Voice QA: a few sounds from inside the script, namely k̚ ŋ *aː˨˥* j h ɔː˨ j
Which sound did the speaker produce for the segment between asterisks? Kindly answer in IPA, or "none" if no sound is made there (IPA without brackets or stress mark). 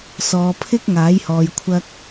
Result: aː˨˥